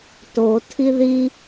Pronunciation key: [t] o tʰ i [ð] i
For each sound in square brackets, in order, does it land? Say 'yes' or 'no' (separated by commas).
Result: yes, yes